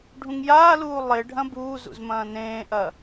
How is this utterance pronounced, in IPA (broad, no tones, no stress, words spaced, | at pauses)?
ɖʱũŋjaːluː lˠe ɖʱɐ̃buːzṵz mɐ̃ːnẽːʔɐ